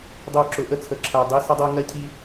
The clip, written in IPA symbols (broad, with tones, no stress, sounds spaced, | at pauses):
dˤ ɪ˦ ʊ̯ ǁ ʊ˨˦ ʔ ə˦ t͡sʰ ə˨ ǁʰ æ˨ dˤ i˦ s ə˦ dˤ ʌ˦ ʊ̯ ŋ ɜ˦ cʰ i˦